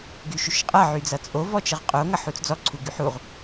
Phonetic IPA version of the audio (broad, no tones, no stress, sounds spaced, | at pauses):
ɡ y ʃ y ʃ qʼ ʌ ʕ y d͡z ʌ t͡sʼ o v ɔ t͡ʃ ɤ ʁ qʼ o ŋ ʌ ħ u t͡s d͡z ɔ ǀʰ u ɡ y ħ u ʁ